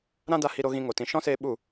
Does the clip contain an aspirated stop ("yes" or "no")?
no